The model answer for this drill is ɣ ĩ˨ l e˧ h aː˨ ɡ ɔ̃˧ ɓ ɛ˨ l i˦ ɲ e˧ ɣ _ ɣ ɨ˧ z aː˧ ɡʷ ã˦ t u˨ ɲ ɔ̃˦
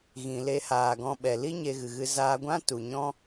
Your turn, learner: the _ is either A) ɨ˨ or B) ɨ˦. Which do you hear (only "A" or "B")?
A